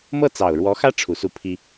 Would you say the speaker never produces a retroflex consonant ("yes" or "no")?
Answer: no